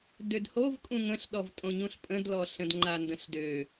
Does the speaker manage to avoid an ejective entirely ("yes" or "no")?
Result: no